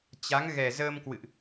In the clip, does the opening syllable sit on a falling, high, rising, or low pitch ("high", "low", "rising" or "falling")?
rising